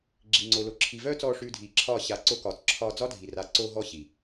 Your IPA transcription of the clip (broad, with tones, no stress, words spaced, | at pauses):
ɡ͡ǁi˨ŋ͡ǀo˨lo˨ ǁʰi˨vœː˦t͡sɔː˧ ʂʉː˧dʱiː˨ǁʰɒː˦˨ ɕa˨˦ ǀo˧kɒː˨t͡sǁʰɒː˧ d͡zɒ˦dʱi˨ra˨˦ ǀo˧ɦɔ˧ ɕi˨